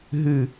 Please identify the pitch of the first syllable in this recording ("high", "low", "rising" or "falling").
low